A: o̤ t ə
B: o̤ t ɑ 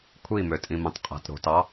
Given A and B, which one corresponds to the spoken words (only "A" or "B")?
B